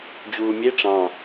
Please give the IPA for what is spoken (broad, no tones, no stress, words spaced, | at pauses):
d͡ʑuːmʲe ʈ͡ʂɑ̃